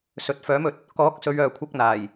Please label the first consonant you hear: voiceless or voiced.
voiceless